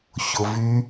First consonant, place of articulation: palatal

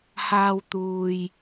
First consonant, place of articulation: glottal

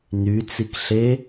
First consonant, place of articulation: alveolar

